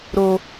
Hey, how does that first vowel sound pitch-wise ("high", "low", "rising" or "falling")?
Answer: high